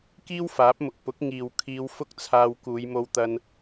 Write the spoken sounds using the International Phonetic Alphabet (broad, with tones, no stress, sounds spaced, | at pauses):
k iː˥ w f aː˨˥ p̚ m ʊ˨ k̚ p ʊ˨˥ k̚ ŋ iː˨ w kʰ iː˧ w f ʊ˥ k̚ t͡sʰ aː˧ w k uː˨˧ j m o˧ w t̪ ɐ˧ n